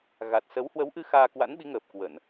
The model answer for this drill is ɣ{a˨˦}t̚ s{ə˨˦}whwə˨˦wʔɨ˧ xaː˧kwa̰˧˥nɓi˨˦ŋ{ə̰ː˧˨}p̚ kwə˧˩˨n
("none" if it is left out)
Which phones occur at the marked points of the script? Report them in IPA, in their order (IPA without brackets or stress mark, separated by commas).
a˨˩, ə˨˦, əː˨˩